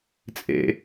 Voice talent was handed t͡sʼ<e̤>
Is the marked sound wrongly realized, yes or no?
yes